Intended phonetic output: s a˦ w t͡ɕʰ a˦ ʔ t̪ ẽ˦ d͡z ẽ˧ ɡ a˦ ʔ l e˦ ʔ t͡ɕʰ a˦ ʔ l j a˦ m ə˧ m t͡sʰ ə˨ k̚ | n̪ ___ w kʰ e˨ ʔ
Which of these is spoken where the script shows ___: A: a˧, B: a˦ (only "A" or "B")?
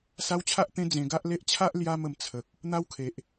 B